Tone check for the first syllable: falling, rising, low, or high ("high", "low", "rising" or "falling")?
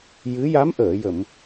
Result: rising